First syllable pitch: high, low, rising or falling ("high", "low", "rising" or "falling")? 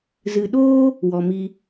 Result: low